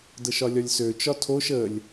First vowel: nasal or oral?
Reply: oral